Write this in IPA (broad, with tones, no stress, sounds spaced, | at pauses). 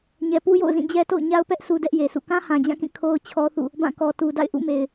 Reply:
ɲ ɛ˨ p u˦ j o̰˦˨ ʊ̯ z ĩ˦˨ d͡ʑ ɛ˦ t o̰˦˨ ʊ̯ ɲ a˦ ʊ̯ p ɛ˦ ʔ s u˦ d ɛ˦ ʔ j e˨ sʰ ṵ˦˨ k ã˦ h ã˨ d͡ʑ ã˦˨ k ĩ˦˨ kʰ o˦ ʊ̯ t͡ɕʰ ɔ˦ θ ṵ˦˨ | b ã˦˨ k ɔ˨ t u˨ d a̰˦˨ ɪ̯ ʔ ṵ˦˨ m e˨ ɪ̯